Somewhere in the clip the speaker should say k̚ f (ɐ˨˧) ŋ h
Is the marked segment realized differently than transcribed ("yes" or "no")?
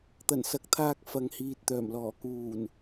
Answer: no